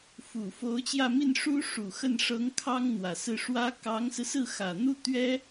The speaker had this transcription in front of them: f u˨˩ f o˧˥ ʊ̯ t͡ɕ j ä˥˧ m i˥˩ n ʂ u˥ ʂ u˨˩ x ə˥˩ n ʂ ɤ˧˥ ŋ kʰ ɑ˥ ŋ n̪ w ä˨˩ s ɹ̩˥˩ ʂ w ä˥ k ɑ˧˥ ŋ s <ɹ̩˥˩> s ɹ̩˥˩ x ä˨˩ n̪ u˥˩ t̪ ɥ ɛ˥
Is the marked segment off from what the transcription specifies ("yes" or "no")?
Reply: yes